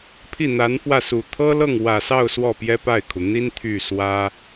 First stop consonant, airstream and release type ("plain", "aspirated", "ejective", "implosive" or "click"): aspirated